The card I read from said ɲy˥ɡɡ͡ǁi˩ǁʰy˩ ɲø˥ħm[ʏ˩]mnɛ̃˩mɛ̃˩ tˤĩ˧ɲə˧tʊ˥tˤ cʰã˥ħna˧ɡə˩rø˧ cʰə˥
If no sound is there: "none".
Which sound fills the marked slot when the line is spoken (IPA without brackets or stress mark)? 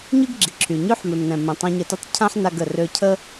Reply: ʏ˩